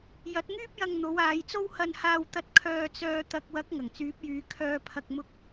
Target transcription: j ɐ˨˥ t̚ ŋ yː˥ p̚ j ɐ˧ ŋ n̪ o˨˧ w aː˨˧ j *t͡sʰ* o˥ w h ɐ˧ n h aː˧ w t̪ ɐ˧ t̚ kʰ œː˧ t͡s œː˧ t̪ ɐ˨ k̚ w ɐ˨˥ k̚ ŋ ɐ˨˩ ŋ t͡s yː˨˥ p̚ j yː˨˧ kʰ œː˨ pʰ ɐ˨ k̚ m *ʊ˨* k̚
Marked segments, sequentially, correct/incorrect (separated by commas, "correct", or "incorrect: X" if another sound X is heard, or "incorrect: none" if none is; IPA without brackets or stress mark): incorrect: t͡s, incorrect: ʊ˧